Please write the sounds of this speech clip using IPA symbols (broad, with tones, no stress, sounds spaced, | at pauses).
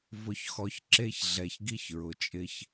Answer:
v ʊ˨ ç x ɔ˨ ç ǁ e˦ ç ɮ ɛ˨ ç ɡ i˦ ç ɹ ʊ˨ t͡ʃʼ ɪ˦ ç